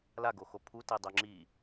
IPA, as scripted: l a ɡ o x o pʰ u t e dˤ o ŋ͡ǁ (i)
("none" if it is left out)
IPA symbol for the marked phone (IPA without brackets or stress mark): i